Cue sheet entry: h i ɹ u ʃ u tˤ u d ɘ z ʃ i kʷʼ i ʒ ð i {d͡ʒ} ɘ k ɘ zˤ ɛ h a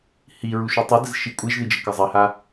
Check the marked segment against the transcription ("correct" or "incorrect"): correct